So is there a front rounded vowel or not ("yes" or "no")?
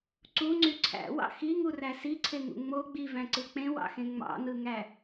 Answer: yes